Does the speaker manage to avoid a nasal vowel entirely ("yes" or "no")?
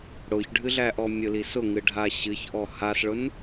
yes